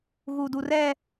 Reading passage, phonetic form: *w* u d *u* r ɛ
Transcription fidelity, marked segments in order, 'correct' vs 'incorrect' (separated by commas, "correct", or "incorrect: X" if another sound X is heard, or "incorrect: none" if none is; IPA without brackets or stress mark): incorrect: ɣ, correct